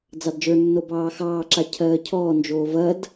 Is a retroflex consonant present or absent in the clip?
absent